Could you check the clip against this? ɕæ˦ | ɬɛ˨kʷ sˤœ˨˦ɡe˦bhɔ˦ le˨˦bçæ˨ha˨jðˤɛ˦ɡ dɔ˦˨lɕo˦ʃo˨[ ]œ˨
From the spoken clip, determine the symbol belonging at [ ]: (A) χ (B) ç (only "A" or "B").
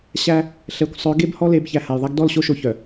B